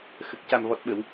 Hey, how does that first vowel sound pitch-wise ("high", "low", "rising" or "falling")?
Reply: low